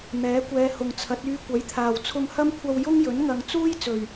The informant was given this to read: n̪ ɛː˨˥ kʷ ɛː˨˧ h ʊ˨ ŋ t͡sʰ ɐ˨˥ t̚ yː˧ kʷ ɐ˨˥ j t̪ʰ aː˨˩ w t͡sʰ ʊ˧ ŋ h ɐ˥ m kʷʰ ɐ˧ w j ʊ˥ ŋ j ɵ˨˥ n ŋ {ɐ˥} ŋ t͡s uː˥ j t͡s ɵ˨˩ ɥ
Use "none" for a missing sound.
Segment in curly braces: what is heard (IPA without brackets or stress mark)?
ɐ˨